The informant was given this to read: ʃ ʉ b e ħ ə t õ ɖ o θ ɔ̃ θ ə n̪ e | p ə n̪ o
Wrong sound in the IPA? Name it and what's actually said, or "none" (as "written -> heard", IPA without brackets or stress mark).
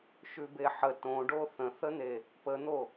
ɔ̃ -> ə̃